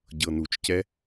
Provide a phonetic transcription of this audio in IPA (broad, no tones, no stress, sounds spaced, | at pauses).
ɟ ɤ n u t͡ʃ c ɛ